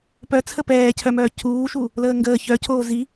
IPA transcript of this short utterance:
p œ t͡sʰ ə p ɛː cʰ œ m œː cʰ uː ʃ u | l əː ŋ ɡ əː ç œ cʰ oː z i

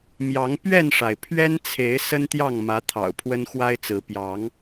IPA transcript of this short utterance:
m j ɑ˨˦ ŋ p ɥ ɛ˥˨ n ʂ a˩ ɪ̯ pʰ ɥ ɛ˦ n t͡sʰ e˨˦ ɪ̯ s ə˦ n t̪ j ɑ˥˨ ŋ m ä˨˦ t̪ʰ ɑ̰˨˩ ʊ̯ pʰ w ə˦ n x w a˦ ɪ̯ t͡s ɹ̩˨˦ p j ɑ˨˦ ŋ

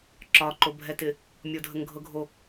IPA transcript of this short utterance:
ǁ ɒ ǃ o bʱ ɛ t ɪ | mʲ o dʱ ə ŋ ɡʱ ɤ ɡʱ o

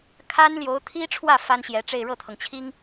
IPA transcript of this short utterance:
kʰ a˥ n l j o˧˥ ʊ̯ t̪ʰ i˥ ʈ͡ʂʰ w ä˥˩ f a˥ n ɕ j ɛ˧˥ ʈ͡ʂ e˥˧ ɪ̯ ɻ ɤ˥˩ t̪ʰ ɤ˩ ŋ t͡ɕʰ i˥ ŋ

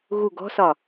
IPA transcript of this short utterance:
ɣ u ɡ ɔ̤ s ɒ

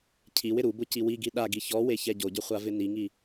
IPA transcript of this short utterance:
cʰ i w ɪ ɾ u b ʊ c i w i ɡ i ɗ a ɡ i ç ɔ w e ç ɛ ɟ o ɟ ʊ χʷ a v ɪ n i ŋ i

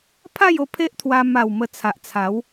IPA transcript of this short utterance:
pʰ a˥˧ j o˧ pʰ e˦ ʔ t̪ʰ w a˧ m a˨˩ w m ə˧ t͡sʰ a˨ ʔ t͡sʰ a˨˦ w

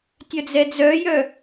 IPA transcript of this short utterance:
tʲ œ d͡z ɛ d͡z œ j œ

